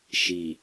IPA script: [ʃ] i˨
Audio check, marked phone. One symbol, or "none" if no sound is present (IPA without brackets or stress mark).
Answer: ʃ